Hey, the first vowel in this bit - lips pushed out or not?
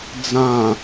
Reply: no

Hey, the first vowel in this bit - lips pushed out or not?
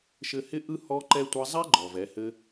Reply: no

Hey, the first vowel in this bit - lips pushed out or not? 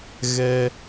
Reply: no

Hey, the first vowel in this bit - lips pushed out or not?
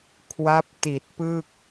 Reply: no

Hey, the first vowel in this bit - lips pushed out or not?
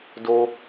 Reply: yes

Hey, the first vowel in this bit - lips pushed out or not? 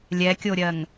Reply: no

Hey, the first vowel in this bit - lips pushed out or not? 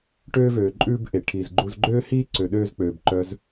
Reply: yes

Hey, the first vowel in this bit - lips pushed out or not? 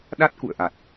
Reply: no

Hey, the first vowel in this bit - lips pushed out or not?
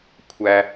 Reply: no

